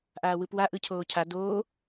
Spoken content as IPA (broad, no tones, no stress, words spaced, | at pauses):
ʔaːwɯpwa ʔɯcʰoːcʰa doː